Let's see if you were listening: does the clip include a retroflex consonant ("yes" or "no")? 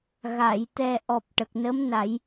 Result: yes